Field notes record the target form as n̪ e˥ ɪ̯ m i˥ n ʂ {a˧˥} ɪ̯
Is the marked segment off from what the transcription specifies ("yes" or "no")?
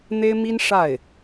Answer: yes